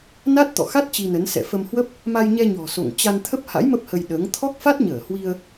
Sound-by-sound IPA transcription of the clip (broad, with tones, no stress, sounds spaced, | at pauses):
n a˦˥ t̚ t̪ ɔ̰˧˨ x a˦˥ t̚ t͡ɕ i˧ n ə˨˦ n s ɛ̰˧˨ f ə˧ m h w ə˦˥ p̚ | m a˧ j ɲ ɛ˧ ɲ ɔ̤˨˩ s o̰˧˨ ŋ t͡ɕ a˧ n t̪ʰ ə˦˥ p̚ h a̰˧˥ j m ə˦˥ p̚ h ə˧ j ɗ əː˨˦ ŋ t̪ʰ ɔ˦˥ k̚ f a˦˥ t̚ ɲ əː˧˩ h w i˧ ə̯